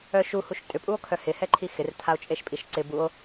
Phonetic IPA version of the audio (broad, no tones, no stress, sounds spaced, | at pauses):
œ ʃ u h u ʃ tʼ ʏ pʼ u o̯ kʰ œ h ɪ h ɛ ǃʰ i x ɪ r tʰ a o̯ t͡ʃʼ e ʃ pʼ i ʃ ǀ ɪ b u o̯